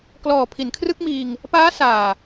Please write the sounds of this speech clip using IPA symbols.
klɔː˨˩ pʰi˩˦nkʰrɯ˥˩k̚miː˧ŋ | paː˦˥ saː˨˩

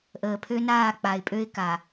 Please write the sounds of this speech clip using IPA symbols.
ʔəː˨pʰø˦ naː˦˨k͡pa˨ɪ̯pʼø˦ɪ̯ka˨

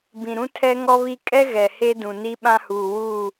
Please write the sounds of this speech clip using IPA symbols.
bĩ˨ɾũ˦ tʰɛ˦ŋɔ˦βi˦ kʼɛ˦ ɣɛ˨he˦dũ˨ ni˦ɓã˦huː˨ wuː˦˨

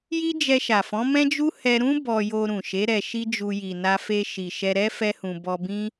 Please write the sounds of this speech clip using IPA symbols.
ji˦d͡ʒɛ˧ʃa˨fɔ̃˨˦ mɛ̃˦d͡ʒu˦ hɛ˧ɾũ˦ bɔ˧jo˧ ɾũ˨ʃe˨˦ ɾɛ˧ʃi˦d͡ʒu˧ ji˨na˧fe˧ʃi˨ ʃɛ˧ɾɛ˦ fɛ˦hũ˧ bɔ˧ bĩ˦

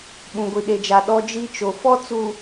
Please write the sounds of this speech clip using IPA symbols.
ɓũ˨ɡʷi˨ɗe˨d͡ʒa˨ ɗɔ˦d͡ʒi˦t͡ʃo˨ fɔ˦t͡su˨

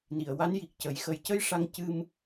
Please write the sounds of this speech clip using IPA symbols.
ni˨˩˨ə̯wa˧˥nji˨˩k̚cə˨˩˦j xə˨˩jcə˧j ʂa˧ŋ cɨ˧m

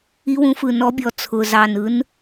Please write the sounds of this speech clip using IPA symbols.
i˨˦wũ˨˦fɯ˨˩ nɔ˨˦bʲɔ˨˩ t͡sʰʊ˨˩zɑ˨˩nɯ˨˦n

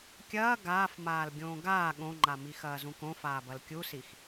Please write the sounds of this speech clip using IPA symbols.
kʲɐː ɡaːfmaːl ɡʲõːɡaː ɠõŋ͡ǃa mixɐːzũkõ faːbɐlkʲusix

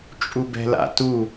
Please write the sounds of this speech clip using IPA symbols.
t͡ʃʼubɛ̤la̰tu

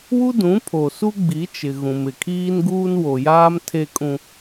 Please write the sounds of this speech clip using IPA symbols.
wu˦dũ˨˦pʰo˨su˦ ɡ͡bi˨˦t͡ʃɪ˨ ɣũ˨mɪ˨kʰiː˦nɡuː˦n wo˨jaː˦m tʰe˦kʼũ˦

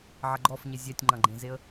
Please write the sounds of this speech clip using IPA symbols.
ʕɐɡ͡ǃɔfɲe zʲɛtʲŋ͡ǃɐ̃ɡ͡ǃẽzeə̯

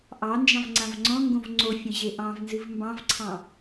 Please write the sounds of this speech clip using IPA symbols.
ʔɑnd͡ʒɑ̃v ŋ͡ǀãvŋ͡ǀɔ̃ŋɡõv ŋ͡ǀofʲə̃ ʑeʔɑ̃vnzɨv mbɑ̃vǀʰɑ̃

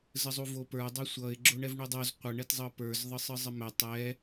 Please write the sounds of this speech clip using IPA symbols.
zəzˤuvopə˞ dˤəsʷʌɪ̯ ɡ͡ǁoɳɛvɳudˤoz qʷʌ ɳɛtzˤɤpə˞z ðˤɯsˤɯzˤəmɛ tˤɛ

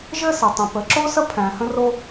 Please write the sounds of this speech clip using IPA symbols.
ʒɘ˥sɘ˩tˤə̃˩ pə˩ǁo˥sə˥ pʰæ̃˩ hə̃˥ro˥

